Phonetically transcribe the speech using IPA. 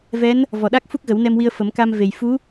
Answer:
vɛ˧˥n | vɔ˨˩ɗa˦˥k̚ fu˦˥k̚ɣə˨˩˦wnɛ˧mwi˧ə̯ fə˨˩˦mka˧m ve˨˩j fu˧˥

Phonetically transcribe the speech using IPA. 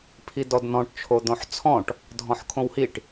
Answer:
pʰidɔdn̪ɔ̃ʈ t͡ʃʰod̪õħt͡sʰɔ̃ʈ | dʱɔ̃ħkʰõwhiʈ

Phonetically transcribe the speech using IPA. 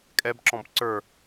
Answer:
kʼɛbǁɔ̃b ǀə˞

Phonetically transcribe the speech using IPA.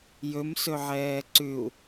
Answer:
jɵmsɵʕɛː ǀʉu̯

